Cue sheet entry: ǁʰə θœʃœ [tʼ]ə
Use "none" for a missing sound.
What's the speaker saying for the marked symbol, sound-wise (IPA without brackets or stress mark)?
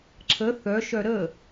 ɾ